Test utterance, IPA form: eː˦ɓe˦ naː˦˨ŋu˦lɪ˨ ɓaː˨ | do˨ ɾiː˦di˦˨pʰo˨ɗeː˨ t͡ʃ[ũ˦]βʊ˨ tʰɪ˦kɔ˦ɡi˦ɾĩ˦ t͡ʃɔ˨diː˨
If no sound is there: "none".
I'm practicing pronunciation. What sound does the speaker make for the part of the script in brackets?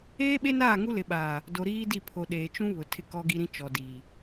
ũ˦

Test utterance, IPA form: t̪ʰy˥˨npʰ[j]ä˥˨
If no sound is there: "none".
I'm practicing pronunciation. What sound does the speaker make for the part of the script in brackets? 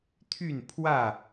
w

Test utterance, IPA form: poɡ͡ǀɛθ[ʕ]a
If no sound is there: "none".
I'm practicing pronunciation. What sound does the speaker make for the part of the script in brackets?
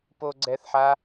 ħ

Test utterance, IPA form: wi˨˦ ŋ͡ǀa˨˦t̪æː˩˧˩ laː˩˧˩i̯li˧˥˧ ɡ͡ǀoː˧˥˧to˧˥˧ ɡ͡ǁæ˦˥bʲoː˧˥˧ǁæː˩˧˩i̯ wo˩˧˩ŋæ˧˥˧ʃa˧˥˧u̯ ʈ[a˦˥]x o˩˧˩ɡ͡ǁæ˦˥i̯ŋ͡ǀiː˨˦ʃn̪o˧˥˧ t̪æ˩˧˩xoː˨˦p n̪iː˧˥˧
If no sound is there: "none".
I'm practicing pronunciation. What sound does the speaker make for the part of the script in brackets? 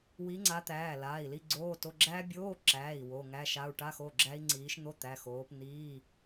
a˧˥˧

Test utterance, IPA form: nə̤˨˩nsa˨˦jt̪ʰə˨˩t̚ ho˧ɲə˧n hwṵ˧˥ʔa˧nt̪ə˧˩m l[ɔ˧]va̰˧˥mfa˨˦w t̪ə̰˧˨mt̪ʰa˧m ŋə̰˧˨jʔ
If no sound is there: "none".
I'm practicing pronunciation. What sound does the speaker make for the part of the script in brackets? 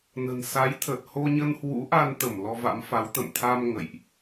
ɔ˧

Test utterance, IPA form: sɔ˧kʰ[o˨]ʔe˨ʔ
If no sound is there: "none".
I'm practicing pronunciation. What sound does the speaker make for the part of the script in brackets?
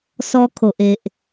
o˨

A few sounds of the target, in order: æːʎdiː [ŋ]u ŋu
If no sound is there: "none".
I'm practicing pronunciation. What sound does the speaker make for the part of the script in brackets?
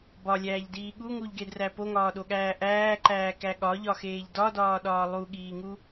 ɠ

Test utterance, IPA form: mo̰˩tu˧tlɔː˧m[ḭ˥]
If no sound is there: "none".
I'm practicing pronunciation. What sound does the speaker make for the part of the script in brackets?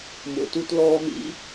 ḭ˥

